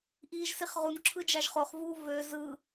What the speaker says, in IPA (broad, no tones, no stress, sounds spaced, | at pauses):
ʔ iː ʒ s i χ ʁ u n ǁʰ ɯ d͡ʒ ɑ ʒ χ o χ v uː v ø z ɯ